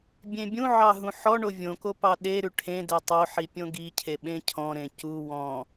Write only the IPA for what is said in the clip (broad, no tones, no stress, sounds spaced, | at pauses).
bʲ ẽ bʲ ũ ʕ ɑ ɦ ũ ħ ɔ ɳ o vʲ õ k o p ɑ ɗ e ɾ ʉ ʈʰ ẽ d ɛ tˤ o ħ i pʲ õ ɡ i cʰ e ɓ ẽ cʰ ɔ̃ ɾ ẽ c u w ɔ̃